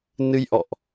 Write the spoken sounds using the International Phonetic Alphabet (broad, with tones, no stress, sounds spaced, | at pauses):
n ɨ˧ j ʔ ɔ̰˧˨ ʔ